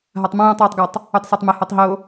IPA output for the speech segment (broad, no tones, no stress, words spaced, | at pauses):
ɦatˤmõjũtˤ wɘtˤɡɤtˤ | ytˤsatˤmɘ hɔtˤɦo